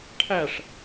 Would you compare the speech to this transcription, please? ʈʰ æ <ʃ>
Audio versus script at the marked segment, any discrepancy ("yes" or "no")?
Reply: yes